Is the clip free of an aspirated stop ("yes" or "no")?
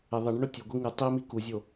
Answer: yes